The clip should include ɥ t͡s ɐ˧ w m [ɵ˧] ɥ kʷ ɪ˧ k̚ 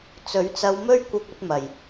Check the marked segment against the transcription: incorrect: ɵ˥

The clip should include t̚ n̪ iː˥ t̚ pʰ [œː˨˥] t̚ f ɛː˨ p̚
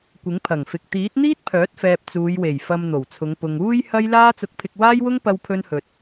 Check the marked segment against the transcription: correct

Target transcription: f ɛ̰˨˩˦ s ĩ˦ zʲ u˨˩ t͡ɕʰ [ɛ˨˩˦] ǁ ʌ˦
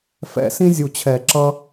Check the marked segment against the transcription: correct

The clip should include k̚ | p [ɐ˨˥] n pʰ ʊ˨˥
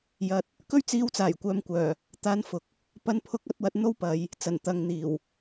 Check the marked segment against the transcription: incorrect: ɐ˨˧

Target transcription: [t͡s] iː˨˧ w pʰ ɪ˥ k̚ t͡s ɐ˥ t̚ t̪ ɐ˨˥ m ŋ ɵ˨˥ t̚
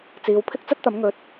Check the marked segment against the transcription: correct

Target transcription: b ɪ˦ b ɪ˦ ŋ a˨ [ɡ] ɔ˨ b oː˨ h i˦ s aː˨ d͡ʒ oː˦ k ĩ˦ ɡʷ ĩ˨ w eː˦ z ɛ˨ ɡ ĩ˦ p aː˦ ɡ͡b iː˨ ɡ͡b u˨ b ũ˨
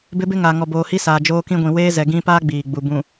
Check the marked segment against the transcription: incorrect: ŋ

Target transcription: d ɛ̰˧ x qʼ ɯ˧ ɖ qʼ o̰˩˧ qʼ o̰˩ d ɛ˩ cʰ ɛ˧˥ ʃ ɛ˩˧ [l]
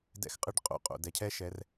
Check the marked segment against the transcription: incorrect: r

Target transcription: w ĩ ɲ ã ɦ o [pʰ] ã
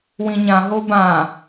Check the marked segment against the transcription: incorrect: b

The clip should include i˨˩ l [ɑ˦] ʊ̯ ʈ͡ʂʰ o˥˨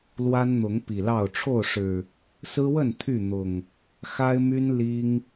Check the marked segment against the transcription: incorrect: ɑ˥˨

